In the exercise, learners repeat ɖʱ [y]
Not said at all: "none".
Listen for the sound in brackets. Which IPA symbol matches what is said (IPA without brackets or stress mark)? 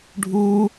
u